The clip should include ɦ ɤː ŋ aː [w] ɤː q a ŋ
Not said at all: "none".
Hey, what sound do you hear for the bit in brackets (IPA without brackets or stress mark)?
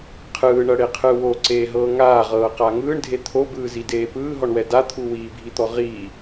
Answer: ʁ